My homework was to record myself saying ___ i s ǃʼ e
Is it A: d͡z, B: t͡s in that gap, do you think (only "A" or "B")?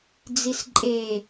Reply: A